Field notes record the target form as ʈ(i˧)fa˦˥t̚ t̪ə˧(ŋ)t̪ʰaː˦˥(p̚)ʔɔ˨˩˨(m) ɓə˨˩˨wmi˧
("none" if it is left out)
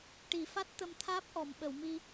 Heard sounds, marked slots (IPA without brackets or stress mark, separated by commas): i˨˩˨, m, p̚, m